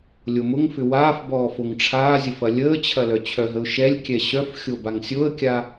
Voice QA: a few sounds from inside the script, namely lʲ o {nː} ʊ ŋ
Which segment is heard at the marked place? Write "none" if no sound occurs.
m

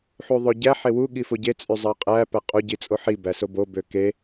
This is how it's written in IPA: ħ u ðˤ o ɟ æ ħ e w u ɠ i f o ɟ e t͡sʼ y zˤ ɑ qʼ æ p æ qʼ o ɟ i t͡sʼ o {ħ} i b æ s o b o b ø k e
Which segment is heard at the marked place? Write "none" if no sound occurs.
ħ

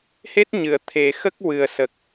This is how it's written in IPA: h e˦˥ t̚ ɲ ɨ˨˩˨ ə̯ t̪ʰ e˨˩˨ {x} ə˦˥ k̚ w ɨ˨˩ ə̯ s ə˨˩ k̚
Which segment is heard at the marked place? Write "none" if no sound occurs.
x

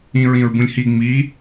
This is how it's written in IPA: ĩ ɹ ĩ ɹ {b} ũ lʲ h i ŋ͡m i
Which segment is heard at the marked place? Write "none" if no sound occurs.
b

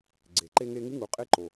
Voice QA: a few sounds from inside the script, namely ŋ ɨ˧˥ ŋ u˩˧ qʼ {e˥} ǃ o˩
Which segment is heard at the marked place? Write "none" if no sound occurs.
e˧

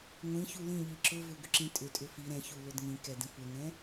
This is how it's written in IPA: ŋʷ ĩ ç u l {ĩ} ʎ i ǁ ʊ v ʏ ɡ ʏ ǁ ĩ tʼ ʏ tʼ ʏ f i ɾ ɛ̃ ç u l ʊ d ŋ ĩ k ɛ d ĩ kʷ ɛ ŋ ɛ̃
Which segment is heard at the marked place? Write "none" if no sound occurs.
ĩ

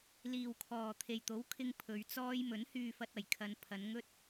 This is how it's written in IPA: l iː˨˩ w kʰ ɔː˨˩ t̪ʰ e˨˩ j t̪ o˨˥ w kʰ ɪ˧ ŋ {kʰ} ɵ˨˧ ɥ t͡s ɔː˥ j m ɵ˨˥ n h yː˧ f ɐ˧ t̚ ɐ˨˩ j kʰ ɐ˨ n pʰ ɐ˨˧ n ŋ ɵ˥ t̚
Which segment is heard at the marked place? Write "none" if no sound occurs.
pʰ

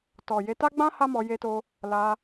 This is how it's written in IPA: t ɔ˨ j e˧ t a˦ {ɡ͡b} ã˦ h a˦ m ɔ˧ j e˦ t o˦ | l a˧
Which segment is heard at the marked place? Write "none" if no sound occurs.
ɡ͡b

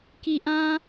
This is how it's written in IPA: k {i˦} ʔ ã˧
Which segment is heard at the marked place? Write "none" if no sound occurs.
i˨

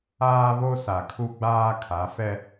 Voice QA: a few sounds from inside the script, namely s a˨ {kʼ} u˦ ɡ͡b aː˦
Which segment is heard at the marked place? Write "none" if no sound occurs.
kʰ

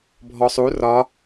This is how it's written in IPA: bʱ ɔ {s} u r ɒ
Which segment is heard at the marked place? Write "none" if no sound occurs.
sˤ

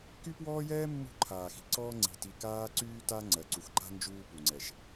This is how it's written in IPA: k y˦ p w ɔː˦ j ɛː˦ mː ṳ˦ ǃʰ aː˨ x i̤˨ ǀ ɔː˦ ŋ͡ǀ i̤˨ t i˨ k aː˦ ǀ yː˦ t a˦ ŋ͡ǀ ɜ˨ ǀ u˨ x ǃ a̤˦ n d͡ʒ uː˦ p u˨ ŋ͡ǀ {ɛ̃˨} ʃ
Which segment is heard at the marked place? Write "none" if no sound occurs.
ɛ˨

